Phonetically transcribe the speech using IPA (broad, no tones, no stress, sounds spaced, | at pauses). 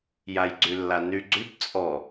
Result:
j a j ɡ͡ǀ y lː a n y ɡ͡ǀ y b t͡sʼ ɔ